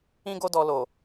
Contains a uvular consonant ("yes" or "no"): no